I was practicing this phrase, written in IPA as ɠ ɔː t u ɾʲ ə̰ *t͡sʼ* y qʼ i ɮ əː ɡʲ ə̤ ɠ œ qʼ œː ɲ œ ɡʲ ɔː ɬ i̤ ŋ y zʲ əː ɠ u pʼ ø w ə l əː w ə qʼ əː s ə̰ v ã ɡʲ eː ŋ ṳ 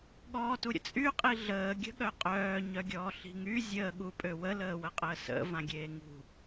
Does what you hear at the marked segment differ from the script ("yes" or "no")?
no